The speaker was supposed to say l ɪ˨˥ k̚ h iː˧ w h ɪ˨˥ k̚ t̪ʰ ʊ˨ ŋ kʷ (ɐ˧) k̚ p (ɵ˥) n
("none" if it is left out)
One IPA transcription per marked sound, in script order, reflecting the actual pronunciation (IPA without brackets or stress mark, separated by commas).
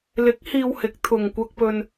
ɐ˧, ɵ˧